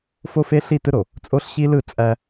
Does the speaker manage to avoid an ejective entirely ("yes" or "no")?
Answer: no